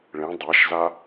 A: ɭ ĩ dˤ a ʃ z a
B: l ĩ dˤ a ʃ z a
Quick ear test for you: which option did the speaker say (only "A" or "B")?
A